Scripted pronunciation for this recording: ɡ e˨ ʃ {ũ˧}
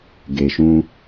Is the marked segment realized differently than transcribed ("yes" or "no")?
no